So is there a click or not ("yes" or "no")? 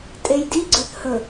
yes